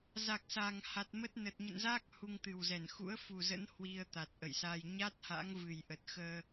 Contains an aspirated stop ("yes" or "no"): no